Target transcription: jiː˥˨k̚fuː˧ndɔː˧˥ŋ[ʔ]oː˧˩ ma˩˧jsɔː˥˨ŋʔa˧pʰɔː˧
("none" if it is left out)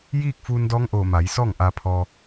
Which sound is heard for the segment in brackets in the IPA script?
ʔ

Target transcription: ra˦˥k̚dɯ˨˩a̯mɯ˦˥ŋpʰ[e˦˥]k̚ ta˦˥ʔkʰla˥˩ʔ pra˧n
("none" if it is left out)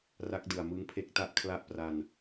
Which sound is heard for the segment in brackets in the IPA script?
e˦˥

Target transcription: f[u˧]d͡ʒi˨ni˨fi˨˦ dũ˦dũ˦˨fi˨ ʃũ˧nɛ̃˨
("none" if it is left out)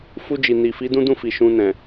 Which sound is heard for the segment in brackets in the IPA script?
u˧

